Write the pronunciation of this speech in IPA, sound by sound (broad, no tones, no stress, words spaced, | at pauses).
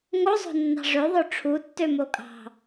ŋozˤo̤nːɑ̤ ʐøðˤø ʈ͡ʂʰutːømo kʼɑ̤